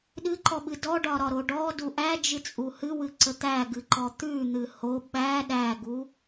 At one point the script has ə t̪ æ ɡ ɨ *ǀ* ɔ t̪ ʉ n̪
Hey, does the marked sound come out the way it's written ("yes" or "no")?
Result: no